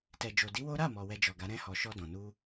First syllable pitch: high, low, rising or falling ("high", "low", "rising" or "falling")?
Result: low